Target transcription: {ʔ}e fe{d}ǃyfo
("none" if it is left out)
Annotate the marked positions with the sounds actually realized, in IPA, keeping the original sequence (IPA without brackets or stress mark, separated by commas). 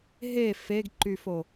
ɦ, ɡ